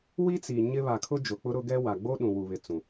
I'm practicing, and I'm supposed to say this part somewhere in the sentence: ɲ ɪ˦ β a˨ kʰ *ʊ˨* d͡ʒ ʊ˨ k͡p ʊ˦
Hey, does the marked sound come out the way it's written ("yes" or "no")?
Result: no